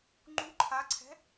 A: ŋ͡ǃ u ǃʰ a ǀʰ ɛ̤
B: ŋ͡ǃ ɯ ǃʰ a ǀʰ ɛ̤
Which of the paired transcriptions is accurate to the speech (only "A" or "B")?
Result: A